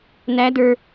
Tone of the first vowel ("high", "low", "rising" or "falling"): rising